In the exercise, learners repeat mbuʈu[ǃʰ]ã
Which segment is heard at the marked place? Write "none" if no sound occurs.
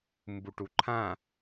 ǃʰ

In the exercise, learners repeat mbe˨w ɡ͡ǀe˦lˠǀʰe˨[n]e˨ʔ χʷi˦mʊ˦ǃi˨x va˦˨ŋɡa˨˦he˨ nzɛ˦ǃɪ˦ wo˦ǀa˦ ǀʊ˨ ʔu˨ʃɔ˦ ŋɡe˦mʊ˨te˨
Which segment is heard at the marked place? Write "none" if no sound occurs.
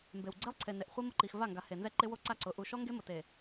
n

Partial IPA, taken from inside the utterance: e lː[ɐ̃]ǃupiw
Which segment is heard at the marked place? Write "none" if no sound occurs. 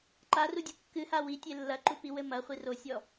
ɐ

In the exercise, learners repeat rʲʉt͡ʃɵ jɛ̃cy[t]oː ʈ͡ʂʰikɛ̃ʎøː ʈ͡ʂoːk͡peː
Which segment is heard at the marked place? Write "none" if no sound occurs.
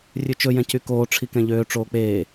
k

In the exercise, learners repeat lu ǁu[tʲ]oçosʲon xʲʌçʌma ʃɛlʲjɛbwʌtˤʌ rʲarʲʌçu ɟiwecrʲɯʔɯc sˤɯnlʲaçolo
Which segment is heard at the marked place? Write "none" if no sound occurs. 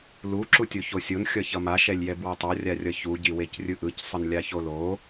tʲ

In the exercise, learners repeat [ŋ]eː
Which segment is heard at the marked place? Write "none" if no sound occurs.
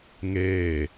ŋ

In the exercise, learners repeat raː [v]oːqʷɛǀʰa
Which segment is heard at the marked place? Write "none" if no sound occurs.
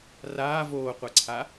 v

